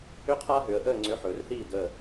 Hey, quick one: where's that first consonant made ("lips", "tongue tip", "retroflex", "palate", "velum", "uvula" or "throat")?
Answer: uvula